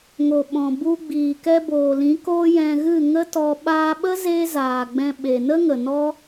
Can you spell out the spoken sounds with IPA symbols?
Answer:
ŋ o˨ ɓ ɔ̃˨ b u˧ ɡ͡b iː˨ k ɛ˧ b oː˨ l ĩ˨˦ k oː˦ j ɛ̃˧ ɣ ɨ˦˨ ŋ ə˦ t ɔ˧ ɓ aː˧ ɓ ə˦ z eː˦ z aː˨ ɡ͡b ɛ̃˧ ɓ e˨ n ə˦ ŋ ə˨ n ɔ˦

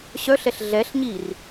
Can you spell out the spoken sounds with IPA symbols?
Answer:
ɕ œ ɬ ɛ ɬ ɮ ɛ ɬ ɲ i r

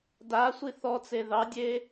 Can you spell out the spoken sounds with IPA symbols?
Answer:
d a sʷ i θ ɔ t͡s e ð ɑ dʲ e

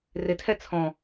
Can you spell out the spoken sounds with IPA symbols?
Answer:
r ɪ tʰ ɛ t͡sʰ ɔ̃

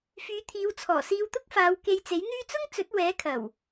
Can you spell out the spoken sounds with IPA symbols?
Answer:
f yː˨˧ t̪ʰ iː˨˧ w t͡sʰ ɔː˨˩ s iː˧ w t̪ ʊ˥ k̚ f aː˨˧ w k e˧ j t͡s e˨˥ j n̪ yː˥ t͡s ʊ˥ ŋ t͡s ɵ˨˥ t̚ w ɛː˨˥ kʰ ɐ˨˩ w

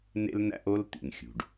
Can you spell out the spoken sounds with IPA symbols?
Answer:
n ḛ˦ l n æ̰˦ ʔ o˦ l t̪ ḭ˨ n xʲ ṳ˨ ɖ

